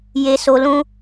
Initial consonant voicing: voiced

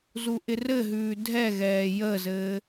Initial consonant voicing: voiced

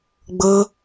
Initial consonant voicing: voiced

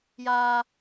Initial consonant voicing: voiced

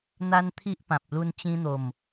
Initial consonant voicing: voiced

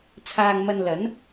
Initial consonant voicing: voiceless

